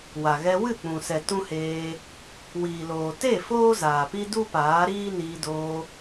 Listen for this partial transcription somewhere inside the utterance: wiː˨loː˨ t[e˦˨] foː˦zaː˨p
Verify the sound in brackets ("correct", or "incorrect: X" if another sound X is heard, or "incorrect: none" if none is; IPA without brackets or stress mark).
correct